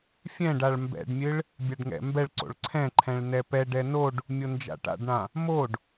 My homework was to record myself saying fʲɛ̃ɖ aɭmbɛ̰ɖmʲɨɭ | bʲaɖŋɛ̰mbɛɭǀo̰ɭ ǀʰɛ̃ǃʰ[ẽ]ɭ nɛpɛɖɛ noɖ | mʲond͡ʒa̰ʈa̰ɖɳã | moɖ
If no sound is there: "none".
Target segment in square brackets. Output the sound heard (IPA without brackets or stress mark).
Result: ɛ̃